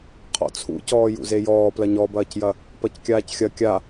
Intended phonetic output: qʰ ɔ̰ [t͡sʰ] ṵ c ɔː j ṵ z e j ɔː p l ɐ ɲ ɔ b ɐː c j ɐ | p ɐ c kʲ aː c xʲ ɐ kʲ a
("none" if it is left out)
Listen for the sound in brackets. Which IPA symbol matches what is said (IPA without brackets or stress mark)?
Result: t͡sʰ